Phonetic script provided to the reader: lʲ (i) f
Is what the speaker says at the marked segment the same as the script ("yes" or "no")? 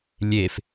no